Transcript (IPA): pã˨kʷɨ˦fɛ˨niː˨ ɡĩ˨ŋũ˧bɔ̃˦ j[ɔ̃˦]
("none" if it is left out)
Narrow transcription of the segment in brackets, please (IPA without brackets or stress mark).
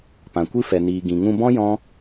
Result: ɔ̃˦